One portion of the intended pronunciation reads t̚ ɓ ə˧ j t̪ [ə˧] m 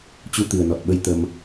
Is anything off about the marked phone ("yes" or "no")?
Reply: no